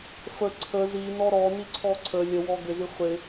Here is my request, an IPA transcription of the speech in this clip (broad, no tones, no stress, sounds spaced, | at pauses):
f ə ǀʰ ə z i n ɔ ɾ ɔ n i ǀʰ ɔ ǀʰ ə lʲ ə w ɔ ɡ ʏ z i χʷ ɪ